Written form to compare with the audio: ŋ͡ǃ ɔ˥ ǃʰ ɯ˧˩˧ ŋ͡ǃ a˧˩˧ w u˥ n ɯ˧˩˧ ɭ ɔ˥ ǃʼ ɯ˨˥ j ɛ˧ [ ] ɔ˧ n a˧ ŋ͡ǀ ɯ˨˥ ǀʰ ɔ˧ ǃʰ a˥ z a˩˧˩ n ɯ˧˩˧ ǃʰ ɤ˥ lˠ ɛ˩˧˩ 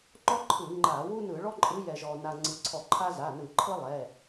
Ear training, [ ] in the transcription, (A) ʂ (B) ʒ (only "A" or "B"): B